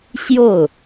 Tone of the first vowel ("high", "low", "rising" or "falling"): falling